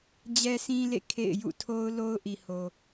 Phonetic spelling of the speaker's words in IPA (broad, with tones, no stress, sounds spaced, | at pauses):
d͡ʑ ɛ˦ sʰ ĩ˦ l ḛ˦˨ kʰ ḛ˦˨ ɪ̯ j ṵ˦˨ tʰ o˦ ʊ̯ l o˦ ʊ̯ ʔ i˨ h o˨